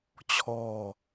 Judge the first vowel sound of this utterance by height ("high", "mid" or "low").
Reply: mid